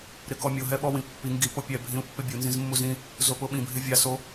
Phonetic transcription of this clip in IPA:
ɾ ɪ k ɔ mʲ o ɦ ɛ ɓ ɔ w ĩ pː i ŋ ɡ i p o pʲ ɛ bʱ ĩ u̯ pː ɪ bʲ u n z ĩ z mː u z ĩ | z o p ʊ ɓ ĩ bʱ ɪ vʲ a s o

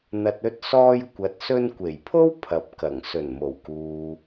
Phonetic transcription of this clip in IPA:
n̪ ɐ˨ t̚ ɵ˧ t̚ s ɔː˧ j kʷ ɐ˨ t̚ s ɵ˧ n kʷ e˨˩ j pʰ o˥ w pʰ ɐ˨˥ p̚ k ɐ˨˩ ŋ s ɵ˨˩ n m o˨˩ w k uː˨

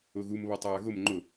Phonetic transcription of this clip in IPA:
ʊ ɣ u m β ɔ tˤ aː ɣ ʊ m ŋ͡ǃ ʊ

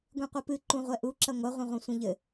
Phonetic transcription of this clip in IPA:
ɡʷ ĩ qʷ i p ɨ ǃ ũ ʁʷ ɛ ʔ u ǁ ɐ ŋʷ ɐ ʁʷ ɐ̃ ʁʷ ɛ̃ sʷ ɛ̃ ʎ ɘ

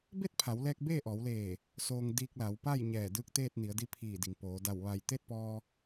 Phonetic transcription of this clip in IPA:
b e˥˨ t̚ pʰ a˩˧ w l ɛː˧ k̚ b eː˥˨ ʔ ɔː˩˧ w l eː˧˩ | s oː˧ ŋ d iː˧ k̚ l a˩˧ w p a˥˨ j ɲ ɛː˧˩ d ɯː˧˥ k̚ t̪ eː˥˨ t̚ n i˩˧ ə̯ d i˧˥ pʰ iː˧˩ d i˩ ŋ p oː˩˧ d a˧˩ w ʋ a˧˩ j t̪ e˥˨ t̚ p ɔː˧

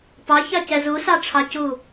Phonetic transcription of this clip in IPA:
p ɑ ç ɑ c ɛ z u s ɑ ʈ͡ʂʰ ɑ c u

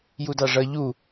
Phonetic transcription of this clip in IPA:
j u d ɑ ʐ ʌ ʎ u

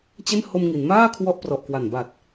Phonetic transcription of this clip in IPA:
t͡ɕ e˥˩ n h o˧ m ŋ i˩˦ n m aː˥˩ kʰ w ɔ˦˥ ʔ p r ɔ˨˩ ʔ k w a˨˩ n b a˨˩ t̚

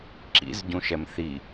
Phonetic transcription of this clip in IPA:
ǁ ḭ z ɟ ũ ʃ ɛ m θ i

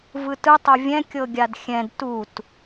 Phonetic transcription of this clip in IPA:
v ɯ t ɯ tˤ o vʲ ɛ̃ kʲ ɤ ɡʲ a d xʲ ɛ̃ d t u t

